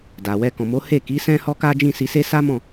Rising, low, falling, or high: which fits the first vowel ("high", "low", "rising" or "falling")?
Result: low